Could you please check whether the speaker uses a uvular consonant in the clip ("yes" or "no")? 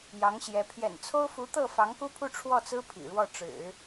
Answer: no